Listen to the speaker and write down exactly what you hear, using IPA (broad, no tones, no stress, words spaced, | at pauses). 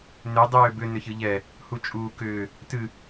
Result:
nʏ dˤʏːbʏ nʏçɨʎɛ | hut͡ʃʼuːkʏː | tɨ